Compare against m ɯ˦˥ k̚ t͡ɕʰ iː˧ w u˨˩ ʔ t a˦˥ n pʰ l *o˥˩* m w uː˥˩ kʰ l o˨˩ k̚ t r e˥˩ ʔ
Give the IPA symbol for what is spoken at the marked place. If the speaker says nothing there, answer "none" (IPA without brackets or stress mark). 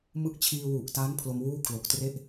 o˧